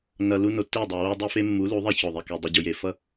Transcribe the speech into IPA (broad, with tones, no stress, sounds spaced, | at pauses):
n ʌ˨ l u˦ n o˨ tː e˦˨ dˤ o˨ w o˦ dˤ i˦ f e˦ mː u˨˦ l u˨˦ ðˤ e˦ ç o˨ ðˤ i˨ k e˨ dˤ i˨ ɟ u˨ j e˨ f ʌ˦